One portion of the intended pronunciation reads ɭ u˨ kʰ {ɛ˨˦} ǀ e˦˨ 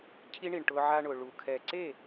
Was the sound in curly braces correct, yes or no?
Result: no